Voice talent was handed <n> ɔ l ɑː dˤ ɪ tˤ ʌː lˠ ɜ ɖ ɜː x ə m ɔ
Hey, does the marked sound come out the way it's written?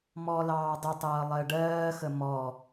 no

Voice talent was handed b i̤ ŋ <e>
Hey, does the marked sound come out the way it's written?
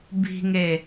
yes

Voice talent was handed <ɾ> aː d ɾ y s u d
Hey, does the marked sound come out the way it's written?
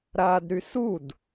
yes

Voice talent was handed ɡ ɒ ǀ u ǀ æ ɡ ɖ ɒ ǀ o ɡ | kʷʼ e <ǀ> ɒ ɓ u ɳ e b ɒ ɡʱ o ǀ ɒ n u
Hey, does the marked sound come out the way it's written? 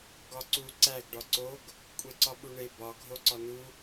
yes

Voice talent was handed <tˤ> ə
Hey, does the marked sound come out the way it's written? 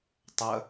yes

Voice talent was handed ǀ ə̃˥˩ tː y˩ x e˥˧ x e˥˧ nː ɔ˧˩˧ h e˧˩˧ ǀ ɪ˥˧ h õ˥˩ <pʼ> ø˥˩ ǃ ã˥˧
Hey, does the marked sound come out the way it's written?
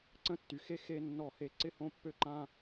no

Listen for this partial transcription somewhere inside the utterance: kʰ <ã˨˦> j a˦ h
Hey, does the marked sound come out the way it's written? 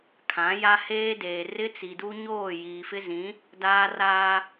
yes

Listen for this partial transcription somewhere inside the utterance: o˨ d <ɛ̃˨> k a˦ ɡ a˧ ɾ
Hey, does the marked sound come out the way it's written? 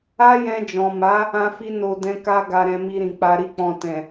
no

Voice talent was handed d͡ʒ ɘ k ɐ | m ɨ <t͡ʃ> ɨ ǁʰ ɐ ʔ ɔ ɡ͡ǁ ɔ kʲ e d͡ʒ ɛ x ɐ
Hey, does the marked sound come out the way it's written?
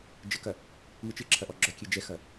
yes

